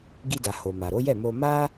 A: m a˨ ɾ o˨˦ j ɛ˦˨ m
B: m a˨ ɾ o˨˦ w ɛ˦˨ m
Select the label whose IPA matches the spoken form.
A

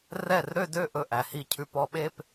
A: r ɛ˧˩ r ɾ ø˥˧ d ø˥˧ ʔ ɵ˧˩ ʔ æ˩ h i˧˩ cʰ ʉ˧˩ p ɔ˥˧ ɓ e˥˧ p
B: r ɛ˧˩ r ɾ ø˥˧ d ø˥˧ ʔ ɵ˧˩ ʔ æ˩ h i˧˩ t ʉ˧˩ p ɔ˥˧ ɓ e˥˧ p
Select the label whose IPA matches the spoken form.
A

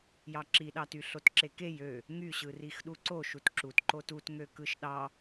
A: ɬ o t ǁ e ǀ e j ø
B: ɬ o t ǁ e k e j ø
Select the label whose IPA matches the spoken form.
B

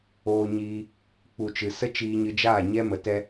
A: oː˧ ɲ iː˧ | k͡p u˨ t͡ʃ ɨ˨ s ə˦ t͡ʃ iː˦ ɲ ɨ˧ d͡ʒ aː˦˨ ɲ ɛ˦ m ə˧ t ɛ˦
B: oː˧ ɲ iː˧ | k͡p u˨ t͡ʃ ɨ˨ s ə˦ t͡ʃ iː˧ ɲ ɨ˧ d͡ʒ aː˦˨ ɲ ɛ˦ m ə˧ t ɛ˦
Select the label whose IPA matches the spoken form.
B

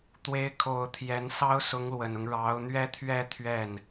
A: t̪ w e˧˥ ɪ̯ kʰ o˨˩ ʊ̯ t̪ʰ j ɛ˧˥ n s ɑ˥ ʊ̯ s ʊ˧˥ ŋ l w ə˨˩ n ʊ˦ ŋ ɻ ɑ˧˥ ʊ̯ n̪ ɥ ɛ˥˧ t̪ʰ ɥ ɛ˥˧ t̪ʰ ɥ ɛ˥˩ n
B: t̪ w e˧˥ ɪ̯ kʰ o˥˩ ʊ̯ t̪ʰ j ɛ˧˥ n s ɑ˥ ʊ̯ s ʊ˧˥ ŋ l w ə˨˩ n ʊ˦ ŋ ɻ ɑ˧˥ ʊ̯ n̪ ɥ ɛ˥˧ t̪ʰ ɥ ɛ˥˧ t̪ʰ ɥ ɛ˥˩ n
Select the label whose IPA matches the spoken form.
A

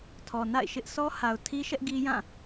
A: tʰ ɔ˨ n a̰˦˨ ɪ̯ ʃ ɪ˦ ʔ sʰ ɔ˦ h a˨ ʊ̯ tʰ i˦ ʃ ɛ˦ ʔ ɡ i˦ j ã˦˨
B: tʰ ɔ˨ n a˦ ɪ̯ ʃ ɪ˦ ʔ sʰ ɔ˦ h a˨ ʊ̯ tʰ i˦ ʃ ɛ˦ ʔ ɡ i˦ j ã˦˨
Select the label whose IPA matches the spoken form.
A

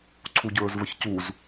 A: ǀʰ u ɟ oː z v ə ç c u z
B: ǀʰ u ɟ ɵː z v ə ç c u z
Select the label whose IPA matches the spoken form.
B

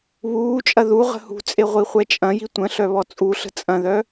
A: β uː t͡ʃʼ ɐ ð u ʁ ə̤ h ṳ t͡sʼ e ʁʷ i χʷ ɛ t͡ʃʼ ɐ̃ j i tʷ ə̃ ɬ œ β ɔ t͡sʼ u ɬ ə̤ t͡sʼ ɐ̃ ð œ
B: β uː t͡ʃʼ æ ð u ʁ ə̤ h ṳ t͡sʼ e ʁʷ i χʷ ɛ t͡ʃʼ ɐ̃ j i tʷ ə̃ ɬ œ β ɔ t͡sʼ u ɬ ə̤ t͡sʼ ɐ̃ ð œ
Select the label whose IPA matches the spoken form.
A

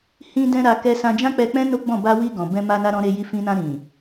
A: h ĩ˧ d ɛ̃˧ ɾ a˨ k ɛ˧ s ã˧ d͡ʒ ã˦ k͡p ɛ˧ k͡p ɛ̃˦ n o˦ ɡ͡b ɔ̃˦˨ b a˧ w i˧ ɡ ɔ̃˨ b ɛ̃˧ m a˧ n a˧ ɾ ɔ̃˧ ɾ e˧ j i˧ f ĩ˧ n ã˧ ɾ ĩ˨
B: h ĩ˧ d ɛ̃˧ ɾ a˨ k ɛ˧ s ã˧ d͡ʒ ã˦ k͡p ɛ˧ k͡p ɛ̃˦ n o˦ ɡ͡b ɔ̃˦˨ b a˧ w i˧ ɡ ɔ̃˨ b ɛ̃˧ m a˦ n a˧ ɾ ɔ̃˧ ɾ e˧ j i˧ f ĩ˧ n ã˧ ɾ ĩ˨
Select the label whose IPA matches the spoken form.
A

